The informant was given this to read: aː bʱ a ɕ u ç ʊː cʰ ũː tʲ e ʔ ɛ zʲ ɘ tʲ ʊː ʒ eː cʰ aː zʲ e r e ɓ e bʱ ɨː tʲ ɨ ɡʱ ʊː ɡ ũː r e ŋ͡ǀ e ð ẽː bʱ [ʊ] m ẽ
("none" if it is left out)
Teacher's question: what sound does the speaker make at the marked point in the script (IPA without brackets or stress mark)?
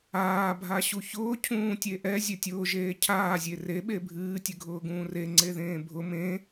ʊ